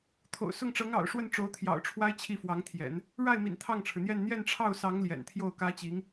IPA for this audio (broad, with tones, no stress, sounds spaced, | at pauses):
t̪ʰ o̰˨˩ ʊ̯ s ʊ˥˩ ŋ ʈ͡ʂ ɤ˧˥ ŋ ɑ̰˨˩ ʊ̯ ʂ w ə˥˩ n ʈ͡ʂ o˧˥ ʊ̯ t̪ʰ j ɑ̰˨˩ ʊ̯ ʈ͡ʂʰ w a˥ ɪ̯ t͡ɕʰ i˥˩ f w ɑ˧˥ ŋ t̪ʰ j ɛ̰˨˩˦ n | ɻ a˥˩ ɪ̯ m ḭ˨˩ n t̪ʰ ɑ˥˩ ŋ ʈ͡ʂʰ ɻ̩˩ n̪ j ɛ˥˧ n n̪ j ɛ˥˧ n ʈ͡ʂʰ ɑ˥˩ ʊ̯ s ɑ˧˥ ŋ l j ɛ̰˨˩ n t̪ʰ j o˥˩ ʊ̯ k ä˥ t͡ɕ i˧˥ ŋ